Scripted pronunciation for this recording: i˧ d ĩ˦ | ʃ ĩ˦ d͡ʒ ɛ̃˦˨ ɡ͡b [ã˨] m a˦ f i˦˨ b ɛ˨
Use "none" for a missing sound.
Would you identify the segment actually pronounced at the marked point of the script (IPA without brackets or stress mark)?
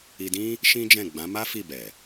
ã˨˦